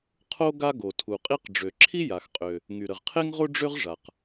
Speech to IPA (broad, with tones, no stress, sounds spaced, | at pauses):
qʰ o˥ ɡ a˥ ɡ o˩ tʰ u˩ qʼ i˥ q ɖ͡ʐ ø˩ ǁʰ i˥ j a˩ x qʼ ø˩ | ŋ y˩ ɾ ə˩ ʁ qʰ e˥ ŋ ʁ o˥ ɖ͡ʐ ø˥ ʁ ʐ a˩ q